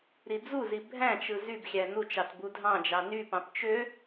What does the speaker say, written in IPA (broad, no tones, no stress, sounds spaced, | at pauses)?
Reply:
ɾ i d͡z u z i bʱ æ̃ t͡ʃ ɯ z y b xʲ æ n u t͡ʃ ɑ t b u dʱ ɑ̃ d͡ʒ ɑ n y p ɑ̃ p t͡ʃ ø